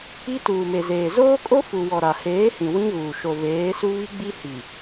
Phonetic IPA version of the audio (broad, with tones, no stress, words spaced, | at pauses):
i˦tuː˨me˨zeː˨ zoː˦kʼo˦ fu˨ wɔ˨ɾa˨heː˨˦hĩ˨ wĩ˦ɣuː˨ ʃo˨veː˨˦su˦ βi˦ ɡ͡bi˦hi˨